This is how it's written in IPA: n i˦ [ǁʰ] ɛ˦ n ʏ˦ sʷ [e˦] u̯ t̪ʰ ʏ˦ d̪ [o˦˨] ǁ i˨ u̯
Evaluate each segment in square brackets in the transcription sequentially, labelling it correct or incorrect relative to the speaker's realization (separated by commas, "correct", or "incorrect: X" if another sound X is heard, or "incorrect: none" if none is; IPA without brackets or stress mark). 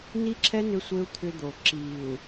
correct, correct, incorrect: o˨